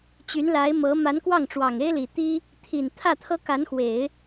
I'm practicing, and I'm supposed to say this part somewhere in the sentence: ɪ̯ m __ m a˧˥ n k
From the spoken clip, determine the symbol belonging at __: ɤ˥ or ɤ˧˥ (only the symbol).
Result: ɤ˧˥